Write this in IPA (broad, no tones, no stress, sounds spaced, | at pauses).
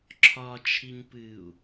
ǁʰ ɒ t͡ʃʰ i ɲ p ɨː u̯